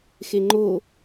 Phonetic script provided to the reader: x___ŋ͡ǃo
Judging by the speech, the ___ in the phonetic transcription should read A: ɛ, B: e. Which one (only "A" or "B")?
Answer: B